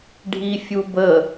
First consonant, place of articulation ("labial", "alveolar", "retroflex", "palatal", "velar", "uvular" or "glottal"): retroflex